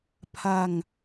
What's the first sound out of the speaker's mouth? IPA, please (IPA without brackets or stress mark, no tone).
pʰ